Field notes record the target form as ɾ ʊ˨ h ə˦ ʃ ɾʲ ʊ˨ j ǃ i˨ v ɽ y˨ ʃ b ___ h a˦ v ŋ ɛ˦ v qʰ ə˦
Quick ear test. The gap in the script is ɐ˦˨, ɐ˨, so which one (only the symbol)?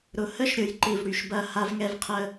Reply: ɐ˦˨